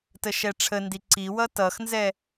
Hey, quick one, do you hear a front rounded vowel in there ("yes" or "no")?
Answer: no